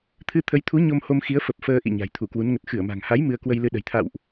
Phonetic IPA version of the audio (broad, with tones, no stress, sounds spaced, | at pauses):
t̪ʰ ɨ˧ t̪ʰ ə˨˦ j t̪ʰ u˨˦ ɲ o˧ m h o˧ m x i˨˦ ə̯ f ə˨˩ p̚ f əː˧ ʔ ḭ˧˨ ɲ a̤˨˩ j t̪ʰ u˧˩ k w u˨˦ n ŋ ə˨˩ t̚ x ɨ˧˩ ə̯ m a̤˨˩ ŋ h a˨˦ j m ɨ˧ ə̯ k w ə˧ j l ɨ˧ ɗ ə̤˨˩ j t̪ʰ a̰˧˨ w ʔ